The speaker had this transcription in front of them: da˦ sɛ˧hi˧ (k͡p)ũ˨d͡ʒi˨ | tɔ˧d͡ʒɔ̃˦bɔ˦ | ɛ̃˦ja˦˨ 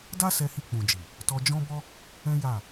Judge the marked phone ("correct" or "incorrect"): correct